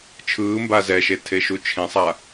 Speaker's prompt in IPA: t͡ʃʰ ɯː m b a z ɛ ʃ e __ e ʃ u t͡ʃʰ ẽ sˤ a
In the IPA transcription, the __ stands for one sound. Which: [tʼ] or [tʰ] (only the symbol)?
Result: tʰ